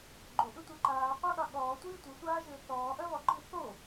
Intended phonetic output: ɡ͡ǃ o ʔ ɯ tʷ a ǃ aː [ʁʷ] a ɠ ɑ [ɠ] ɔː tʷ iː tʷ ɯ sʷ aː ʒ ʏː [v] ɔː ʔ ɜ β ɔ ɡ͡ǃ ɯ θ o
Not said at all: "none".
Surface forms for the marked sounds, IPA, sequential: qʷ, ɠ, θ

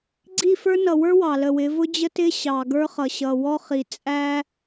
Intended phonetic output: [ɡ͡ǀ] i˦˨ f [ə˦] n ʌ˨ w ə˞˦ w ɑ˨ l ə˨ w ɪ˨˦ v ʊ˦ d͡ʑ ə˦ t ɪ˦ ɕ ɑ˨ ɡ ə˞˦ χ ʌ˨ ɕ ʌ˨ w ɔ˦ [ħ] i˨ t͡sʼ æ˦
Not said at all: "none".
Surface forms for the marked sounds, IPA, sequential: ɡ͡ǀ, ə˞˦, χ

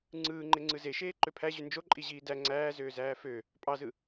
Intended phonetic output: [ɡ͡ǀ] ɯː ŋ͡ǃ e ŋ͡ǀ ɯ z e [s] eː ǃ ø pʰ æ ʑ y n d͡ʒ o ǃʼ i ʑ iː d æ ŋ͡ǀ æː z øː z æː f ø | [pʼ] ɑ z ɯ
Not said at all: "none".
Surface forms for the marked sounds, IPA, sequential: ŋ͡ǀ, ʃ, pʼ

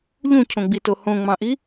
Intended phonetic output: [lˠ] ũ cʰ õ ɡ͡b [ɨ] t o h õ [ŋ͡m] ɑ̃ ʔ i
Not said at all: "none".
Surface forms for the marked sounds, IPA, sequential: ʎ, i, ŋ͡m

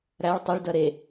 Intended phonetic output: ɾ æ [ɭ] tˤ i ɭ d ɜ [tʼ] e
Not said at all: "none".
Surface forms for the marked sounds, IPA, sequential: ɭ, ɾ

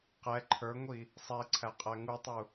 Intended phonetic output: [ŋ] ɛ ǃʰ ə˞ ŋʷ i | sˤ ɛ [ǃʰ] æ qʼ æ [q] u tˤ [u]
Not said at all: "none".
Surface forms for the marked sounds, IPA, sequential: q, ǀʰ, ŋ, u

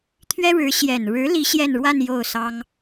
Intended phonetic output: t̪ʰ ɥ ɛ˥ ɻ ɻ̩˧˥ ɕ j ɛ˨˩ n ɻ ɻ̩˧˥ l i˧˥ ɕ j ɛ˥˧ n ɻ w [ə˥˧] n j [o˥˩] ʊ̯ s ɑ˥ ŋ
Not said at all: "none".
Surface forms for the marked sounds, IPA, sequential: a˥˧, o˥˩

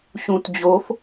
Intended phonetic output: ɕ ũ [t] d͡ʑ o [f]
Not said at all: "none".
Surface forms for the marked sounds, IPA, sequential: t, f

